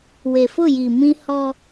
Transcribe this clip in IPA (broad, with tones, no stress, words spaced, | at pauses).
we˨fʊ˦˨ji˨ mĩ˦hɔ˦